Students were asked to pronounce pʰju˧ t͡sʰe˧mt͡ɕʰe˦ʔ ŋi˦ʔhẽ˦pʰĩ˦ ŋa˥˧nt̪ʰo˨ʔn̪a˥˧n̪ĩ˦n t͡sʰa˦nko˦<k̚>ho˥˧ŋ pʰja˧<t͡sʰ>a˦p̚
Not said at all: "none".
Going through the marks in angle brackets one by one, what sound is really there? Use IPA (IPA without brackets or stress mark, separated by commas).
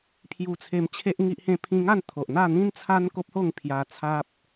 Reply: p̚, t͡sʰ